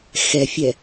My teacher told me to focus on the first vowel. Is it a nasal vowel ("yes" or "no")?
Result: no